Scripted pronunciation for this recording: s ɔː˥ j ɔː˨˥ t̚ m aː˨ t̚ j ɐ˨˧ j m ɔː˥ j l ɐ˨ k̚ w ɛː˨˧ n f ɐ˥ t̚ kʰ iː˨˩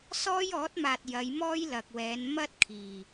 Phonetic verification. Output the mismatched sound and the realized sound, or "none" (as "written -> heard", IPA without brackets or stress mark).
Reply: f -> m